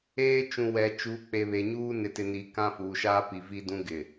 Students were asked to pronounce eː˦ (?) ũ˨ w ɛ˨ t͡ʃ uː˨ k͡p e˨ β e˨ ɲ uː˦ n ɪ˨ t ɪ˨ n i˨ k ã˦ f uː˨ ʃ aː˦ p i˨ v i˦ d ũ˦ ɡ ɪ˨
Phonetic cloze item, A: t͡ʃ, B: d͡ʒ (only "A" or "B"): A